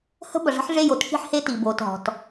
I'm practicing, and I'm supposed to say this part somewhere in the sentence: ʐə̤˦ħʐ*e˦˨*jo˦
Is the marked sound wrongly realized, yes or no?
no